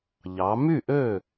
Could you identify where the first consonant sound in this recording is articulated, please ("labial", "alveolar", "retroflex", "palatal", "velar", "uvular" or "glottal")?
palatal